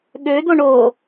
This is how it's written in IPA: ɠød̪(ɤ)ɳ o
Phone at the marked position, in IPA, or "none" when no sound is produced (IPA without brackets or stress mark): o